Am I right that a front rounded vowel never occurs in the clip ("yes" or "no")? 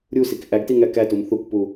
yes